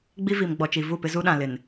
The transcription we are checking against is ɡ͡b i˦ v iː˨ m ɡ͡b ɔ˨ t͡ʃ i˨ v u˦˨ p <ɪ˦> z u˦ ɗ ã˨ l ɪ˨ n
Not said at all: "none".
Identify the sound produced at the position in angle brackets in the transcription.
ɪ˦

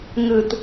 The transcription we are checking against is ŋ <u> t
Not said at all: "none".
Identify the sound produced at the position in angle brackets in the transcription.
ɯ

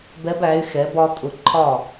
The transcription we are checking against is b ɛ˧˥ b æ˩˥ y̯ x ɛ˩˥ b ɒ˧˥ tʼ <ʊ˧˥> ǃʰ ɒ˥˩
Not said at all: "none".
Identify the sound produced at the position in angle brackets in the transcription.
ʊ˧˥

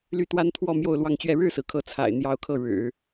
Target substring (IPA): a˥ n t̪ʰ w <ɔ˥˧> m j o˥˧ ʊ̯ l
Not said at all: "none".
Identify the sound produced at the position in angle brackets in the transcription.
ɔ˥˧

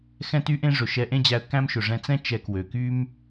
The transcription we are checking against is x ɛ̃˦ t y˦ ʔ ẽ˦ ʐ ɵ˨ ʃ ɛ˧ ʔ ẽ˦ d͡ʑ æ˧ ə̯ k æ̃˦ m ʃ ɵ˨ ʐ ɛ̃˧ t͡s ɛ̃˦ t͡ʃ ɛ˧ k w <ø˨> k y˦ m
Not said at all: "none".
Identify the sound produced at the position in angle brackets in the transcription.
ø˨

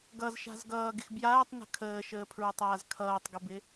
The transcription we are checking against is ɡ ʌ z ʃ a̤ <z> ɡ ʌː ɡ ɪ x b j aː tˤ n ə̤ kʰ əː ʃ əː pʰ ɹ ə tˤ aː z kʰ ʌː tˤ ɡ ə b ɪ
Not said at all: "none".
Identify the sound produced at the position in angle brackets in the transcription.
z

